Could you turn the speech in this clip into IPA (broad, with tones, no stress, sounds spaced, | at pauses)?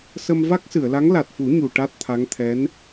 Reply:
s ə˧ m v a˦˥ k̚ s ɨ˨˩˨ ə̯ l a˧˥ ŋ l a˨˩ t̚ f u˨˩˦ ɲ u˨˩ ʈ a˦˥ t̚ t̪ʰ a˧˥ ŋ t̪ʰ ɛ˧˥ n